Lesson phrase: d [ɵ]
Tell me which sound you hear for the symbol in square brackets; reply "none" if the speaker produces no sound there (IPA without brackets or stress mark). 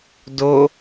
o